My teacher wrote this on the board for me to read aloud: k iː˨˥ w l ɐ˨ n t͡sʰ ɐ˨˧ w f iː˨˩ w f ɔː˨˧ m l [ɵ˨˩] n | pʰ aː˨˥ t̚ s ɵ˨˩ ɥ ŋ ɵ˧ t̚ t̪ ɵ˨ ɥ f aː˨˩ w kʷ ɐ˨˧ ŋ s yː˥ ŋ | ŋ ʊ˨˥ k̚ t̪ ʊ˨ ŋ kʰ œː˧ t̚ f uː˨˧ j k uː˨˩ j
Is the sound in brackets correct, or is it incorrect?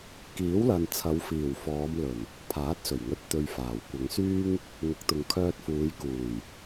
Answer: correct